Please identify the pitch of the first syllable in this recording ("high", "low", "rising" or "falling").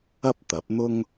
high